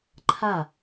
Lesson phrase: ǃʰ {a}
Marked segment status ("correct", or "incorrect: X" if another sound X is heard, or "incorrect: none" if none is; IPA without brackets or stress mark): correct